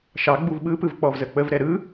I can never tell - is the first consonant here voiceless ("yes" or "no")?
yes